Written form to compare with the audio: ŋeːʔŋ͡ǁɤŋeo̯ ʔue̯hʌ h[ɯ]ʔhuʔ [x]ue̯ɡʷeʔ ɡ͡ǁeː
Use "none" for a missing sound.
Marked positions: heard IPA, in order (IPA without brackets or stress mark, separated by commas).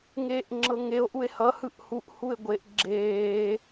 ɯ, h